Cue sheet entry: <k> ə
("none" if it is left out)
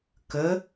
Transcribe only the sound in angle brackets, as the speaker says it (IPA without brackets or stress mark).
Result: k